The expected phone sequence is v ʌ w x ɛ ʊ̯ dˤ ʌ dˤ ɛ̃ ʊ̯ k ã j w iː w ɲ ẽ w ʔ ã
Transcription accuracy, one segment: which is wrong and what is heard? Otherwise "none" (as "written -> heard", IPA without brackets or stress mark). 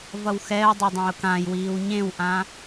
none